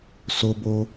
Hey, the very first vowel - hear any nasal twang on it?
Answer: no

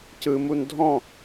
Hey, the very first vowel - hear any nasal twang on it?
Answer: no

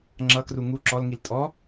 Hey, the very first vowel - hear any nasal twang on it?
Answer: no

